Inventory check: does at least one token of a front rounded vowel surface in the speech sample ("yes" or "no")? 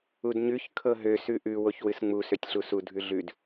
yes